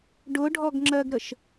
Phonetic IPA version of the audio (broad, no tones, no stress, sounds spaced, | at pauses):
ɖ ʊ ɖʱ ɔ ɡ ŋ͡ǁ ɜ ɡ ɾ ə ʃ